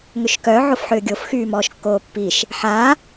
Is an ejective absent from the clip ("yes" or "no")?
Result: yes